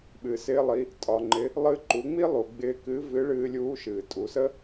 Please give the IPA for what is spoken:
ɓ ɨ˩ s ɪː˧ lˠ i˩˧ | tʼ ɒ˩ ŋ͡ǃ ɪ˩˧ | lˠ ɨ˧ ǃ u˩˧ ŋ͡m i˥ lˠ u˩ ɡ͡b ɪː˧ k ɨː˧˥ v ɨ˧˥ ɭ ɨː˧ lʲ uː˧˥ ʃ ɨː˩ tʼ u˩˧ s ə˥

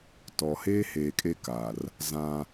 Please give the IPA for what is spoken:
t ɔ˨ h eː˦ h eː˨ kʼ e˦ k a˨ r | z ã˦

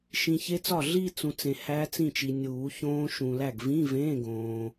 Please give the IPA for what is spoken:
ʃ ĩ˨ ç e˦˥ t͡s ɒ˥˩ ɮ i˥˧ t͡s ũ˨ t͡s ẽ˨ h æ˦˥ t͡s ĩ˥˩ t͡ʃ i˨ nʲ uː˨˩˦ ç õː˦˥ ʃ ũ˨ l æ˥˩ ɡ v ĩ˧˥˧ v ẽ˧˥˧ ɡ õː˨

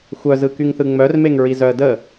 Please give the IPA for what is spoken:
xʷ œ z ɯ k y ŋ θ ɯ ŋ͡m œ r m e ŋ ɹ i z œ ə̯ d ə

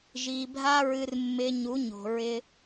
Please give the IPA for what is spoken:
ʒ i˧ bʱ a˦ ɹ ɨ˧ r mː ɪ˧ ɲ u˨˦ ɲ o̤˨ ɹ ɪ˧

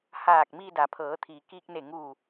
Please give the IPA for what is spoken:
h aː˧˩ k̚ m iː˧ d a˩˧ pʰ ɤː˩˧ t̪ʰ iː˩ k iː˧ k̚ n e˧˩ ŋ uː˧˩

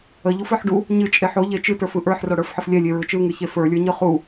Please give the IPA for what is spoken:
ə ʎ u f ə˞ ħ ɖ u | ɲ ɨ t͡ʃʼ e ħ o ʎ e t͡ʃ ɨ t ə˞ f ɯ ʔ ə˞ ħ r o ɽ ə˞ f ħ ə f lʲ ɛ lʲ e ɹ ɯ t͡ʃ ɯ ŋ ɨ ç e f ə˞ lʲ ə˞ ɲ ɯ χ u

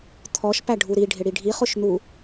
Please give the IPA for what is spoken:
t̪ʰ ɔ ʃ p æ ɖʱ u ɾ i ɖʱ ɪ ɽ i ɖʱ i χ ʊ ʃ n̪ u

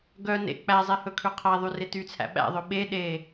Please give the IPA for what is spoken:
ɡ œ n ḛ k͡p æ zˤ ɛ h ɵ kʰ ʉ qʰ æ ðˤ y r e t y t͡sʰ æ̰ ɓ æ̰ ðˤ ɵ ɓ e ɗ e

